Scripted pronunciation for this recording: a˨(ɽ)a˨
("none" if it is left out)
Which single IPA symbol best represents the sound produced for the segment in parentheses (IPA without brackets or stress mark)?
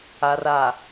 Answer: r